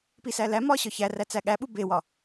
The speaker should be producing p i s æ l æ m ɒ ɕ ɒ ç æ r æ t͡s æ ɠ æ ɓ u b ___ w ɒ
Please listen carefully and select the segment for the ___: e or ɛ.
e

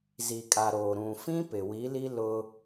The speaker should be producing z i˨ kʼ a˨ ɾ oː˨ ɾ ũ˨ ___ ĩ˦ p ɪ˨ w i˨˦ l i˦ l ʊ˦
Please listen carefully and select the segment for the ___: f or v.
f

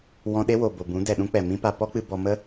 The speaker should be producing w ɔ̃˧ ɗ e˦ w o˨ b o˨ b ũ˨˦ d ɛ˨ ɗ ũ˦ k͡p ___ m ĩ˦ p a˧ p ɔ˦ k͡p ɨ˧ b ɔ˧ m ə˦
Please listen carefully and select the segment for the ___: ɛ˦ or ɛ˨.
ɛ˨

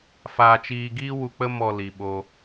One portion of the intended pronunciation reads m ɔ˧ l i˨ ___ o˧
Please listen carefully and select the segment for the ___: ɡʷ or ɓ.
ɓ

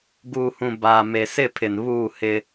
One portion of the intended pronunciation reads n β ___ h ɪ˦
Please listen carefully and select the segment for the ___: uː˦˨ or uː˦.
uː˦˨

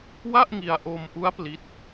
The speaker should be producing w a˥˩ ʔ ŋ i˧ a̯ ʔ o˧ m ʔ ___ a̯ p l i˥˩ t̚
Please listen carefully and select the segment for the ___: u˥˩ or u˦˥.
u˦˥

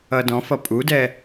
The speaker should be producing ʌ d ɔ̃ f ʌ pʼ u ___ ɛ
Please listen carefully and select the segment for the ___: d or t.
d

